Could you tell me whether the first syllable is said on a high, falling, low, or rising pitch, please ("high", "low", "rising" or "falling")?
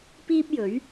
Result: high